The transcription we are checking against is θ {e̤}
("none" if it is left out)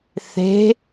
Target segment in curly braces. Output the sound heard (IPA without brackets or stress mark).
e̤